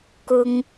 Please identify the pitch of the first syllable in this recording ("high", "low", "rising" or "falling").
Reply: high